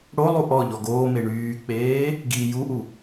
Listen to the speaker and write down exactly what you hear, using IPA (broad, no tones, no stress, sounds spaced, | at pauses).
ɽ o lˠ u ʔ ɔ ʎ ɔ ɡ oː m e ɳ yː k͡p eː | ɡ i j u ʔ u